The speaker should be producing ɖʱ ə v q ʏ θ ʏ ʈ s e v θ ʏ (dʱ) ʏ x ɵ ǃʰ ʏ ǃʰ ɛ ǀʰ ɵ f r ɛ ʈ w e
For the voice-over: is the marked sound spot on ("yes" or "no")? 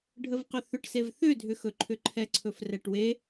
yes